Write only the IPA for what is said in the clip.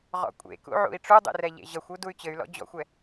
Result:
ʁɔ̰kʷʼḛkṵ ʕṵi̯ʈ͡ʂudˤḛr ɛʎḛʑʌxʷu duy̯t͡ɕɘy̯lɔ̰ d͡ʑɔ̰xʷɛ

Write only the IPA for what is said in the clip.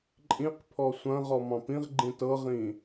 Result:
ǃʼĩq pʰɔsʷɐ̃ʁɔ mɑ̃pĩʁɡ͡ǃĩ tɤʁĩ

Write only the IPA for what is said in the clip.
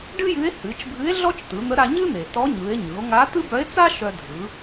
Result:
ɖɨ˥jɨ˧˥e̯ hɨ˩˧t͡ʃbʱɨ˧˥e̯ ɮɔ˥t͡ʃtɯ˩˧n̪ə˧˥ ɾa˧ɲɨ˥n̪e˩ tɔ˧˥ɲɯ˩˧e̯ ɲɯ˩˧o̯ŋa˧˥t̪ɨ˥ bœ˧˥e̯t͡sa˥ ʃœ˧dʱɯ˩˧

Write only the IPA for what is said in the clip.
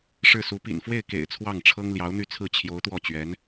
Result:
ʂɻ̩˥˩su˧˥ pḭ˨˩nfwe˥˩ɪ̯kḛ˨˩ɪ̯ t͡sʰwɑ˥˩ŋʈ͡ʂʰɤ˥ŋ ljɑ˧˥ʊ̯n̪y˥˧t͡sʰɹ̩˥˩ t͡ɕʰjo˧˥ʊ̯t̪wɔ˥˩t͡ɕɥɛ˧˥n

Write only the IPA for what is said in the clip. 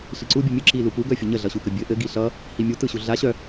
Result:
ɬiǀu bʲɯmʲɯ ǁilupu ɡœfʲəɲə ɮʌɕukəbʲɘ ʔɘ ɡiɬʌ | himʲu tɯɕuɮa ɕœ

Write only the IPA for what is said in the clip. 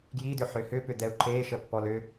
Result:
ɡjidʏħʏ hʏpʏd̪ɛu̯ ǃeʃəpːɔl ʏ

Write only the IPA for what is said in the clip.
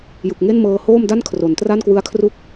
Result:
jɯ˨˩k̚ŋe˥˩nmɤː˧ hoː˥˩mda˥˩n kʰro˩˦ntra˥˩nkwɯ˦˥a̯kʰru˥˩k̚

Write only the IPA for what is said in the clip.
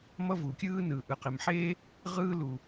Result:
mʌ˥vuː˩ kʲɯː˥nɯː˩ ʔɯ˩qe˩mħeː˥ | ʁɯː˥ luː˩

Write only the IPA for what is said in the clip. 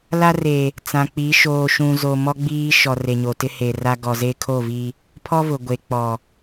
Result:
la˦re˨ | t͡sã˨k͡pi˨˦ ʃoː˨ʃũ˨zo˨ mɔ˦ɡ͡biː˦ ʃɔ˨ re˨ɲo˨tɪ˦ he˨ra˦ ɡɔ˨ze˦kʰo˦˨vi˦ | pʰɔ˦vʊ˨ ɡʷe˨k͡pɔ˨

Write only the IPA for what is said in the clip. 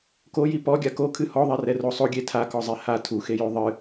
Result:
koji pɔɡʲa ko kʰɨhɔðˤɛrɛ rosˤoɡʲe tʰakɔzˤe ha tʰuxejo ðˤɨ

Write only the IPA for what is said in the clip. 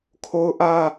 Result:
kʰo˦ʊ̯ʔä˦

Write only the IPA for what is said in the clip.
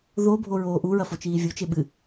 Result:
ðo bʱoɹoːʔuɹɐ fot͡ʃiːvʲut͡ʃe ɓɨ

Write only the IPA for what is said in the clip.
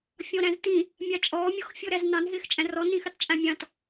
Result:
fʲɔ̃ɾæ̃ztĩ | mʲɑt͡ʃʼɔː mʲɔx fʲɔɾæznɑ̃n ɦɪːxt͡ʃʼæ̃rɔ nĩxitˤt͡ʃʼæ̃mʲɑ̃t

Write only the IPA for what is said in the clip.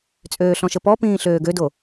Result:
t͡sʼøːɬɔ̃ʃəpɔ pĩːɬøːɡødo

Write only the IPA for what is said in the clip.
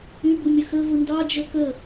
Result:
ybumʲə xəvu ndɑd͡ʒə kə

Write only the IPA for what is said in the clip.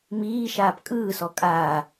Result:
miːʃaːp kʼɯːsɔ kʼaː

